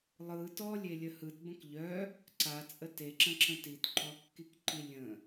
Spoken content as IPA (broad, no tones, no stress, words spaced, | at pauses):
lˠɯ tɔlʲelʲə hɯtbə̃k ʎœ | ǀat͡sʼə teǁə̃ǁə̃ titǃɔkːikǃi lʲə̃